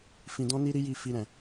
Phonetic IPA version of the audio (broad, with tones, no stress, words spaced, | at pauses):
fĩ˧dɔ̃˦ni˦ ɾi˦ji˦˨ fi˧ɾɛ̃˨